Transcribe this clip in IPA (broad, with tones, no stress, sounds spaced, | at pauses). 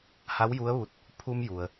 h a˧˥ w j u˧˥ ə̯ ʋ u˧ t̚ | pʰ u˧ m j u˩ ə̯